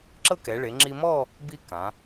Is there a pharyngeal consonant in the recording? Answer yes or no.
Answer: no